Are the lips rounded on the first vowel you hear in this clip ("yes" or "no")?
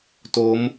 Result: yes